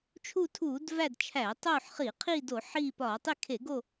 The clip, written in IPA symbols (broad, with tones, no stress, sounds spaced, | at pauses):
t͡ʃʰ u˦˨ tʰ uː˧˩˧ d v æ˦˨ d t͡ʃʰ æ˧˩˧ tˤ oː˦˨ ħ χ i˧˩˧ qʰ iː˦˨ d o˧˩˧ ħ iː˦˨ p ɒː˧˩˧ tˤ i˦˨ kʰ e˧˩˧ ɡ o˦˨